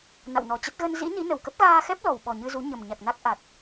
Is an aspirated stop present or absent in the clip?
absent